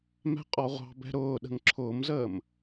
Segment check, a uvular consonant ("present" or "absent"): present